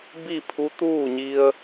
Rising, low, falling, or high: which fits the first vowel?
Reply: falling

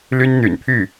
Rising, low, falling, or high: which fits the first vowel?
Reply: high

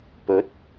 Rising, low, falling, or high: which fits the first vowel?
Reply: rising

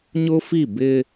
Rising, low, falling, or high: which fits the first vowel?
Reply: high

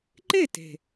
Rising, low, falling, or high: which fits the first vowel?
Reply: falling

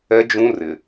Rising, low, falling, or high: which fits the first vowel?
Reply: high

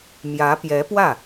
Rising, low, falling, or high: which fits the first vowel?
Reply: rising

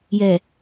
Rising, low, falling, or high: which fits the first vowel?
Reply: low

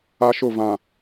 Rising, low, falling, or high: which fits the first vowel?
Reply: high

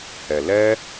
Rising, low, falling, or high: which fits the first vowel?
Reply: low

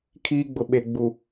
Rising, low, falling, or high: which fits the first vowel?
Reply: high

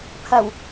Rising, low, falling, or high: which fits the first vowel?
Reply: low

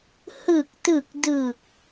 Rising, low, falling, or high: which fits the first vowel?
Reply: low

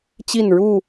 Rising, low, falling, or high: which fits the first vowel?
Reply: falling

